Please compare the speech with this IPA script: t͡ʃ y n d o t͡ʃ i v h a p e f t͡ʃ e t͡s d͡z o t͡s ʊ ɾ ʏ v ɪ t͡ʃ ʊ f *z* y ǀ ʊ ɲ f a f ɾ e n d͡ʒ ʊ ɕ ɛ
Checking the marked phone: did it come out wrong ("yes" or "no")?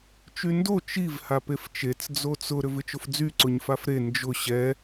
yes